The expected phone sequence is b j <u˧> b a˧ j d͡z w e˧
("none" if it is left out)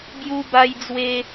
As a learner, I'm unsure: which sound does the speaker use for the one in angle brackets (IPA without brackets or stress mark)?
u˧